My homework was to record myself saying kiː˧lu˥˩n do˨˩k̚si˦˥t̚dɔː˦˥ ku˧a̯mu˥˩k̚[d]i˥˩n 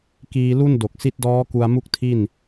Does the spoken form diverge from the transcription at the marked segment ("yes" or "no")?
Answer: yes